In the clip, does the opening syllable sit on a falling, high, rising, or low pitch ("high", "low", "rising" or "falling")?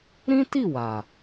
high